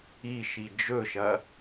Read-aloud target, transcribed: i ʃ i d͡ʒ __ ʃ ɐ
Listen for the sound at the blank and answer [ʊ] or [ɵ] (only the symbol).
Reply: ɵ